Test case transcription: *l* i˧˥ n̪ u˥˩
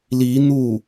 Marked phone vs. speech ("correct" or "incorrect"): correct